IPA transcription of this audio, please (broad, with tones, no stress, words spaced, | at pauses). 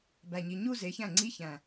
bæ˨˩ɲi˨˩ ɲu˥˧ze˨˦çæ̃˥˩ŋ͡ǀi˦˥ çæ̃˨˩